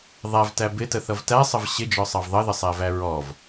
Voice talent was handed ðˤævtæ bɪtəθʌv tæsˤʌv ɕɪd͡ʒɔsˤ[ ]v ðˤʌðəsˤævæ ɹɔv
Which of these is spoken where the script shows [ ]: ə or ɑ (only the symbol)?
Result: ɑ